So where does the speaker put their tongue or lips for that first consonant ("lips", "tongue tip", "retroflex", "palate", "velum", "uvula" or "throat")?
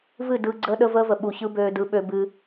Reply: lips